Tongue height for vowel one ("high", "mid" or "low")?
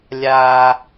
low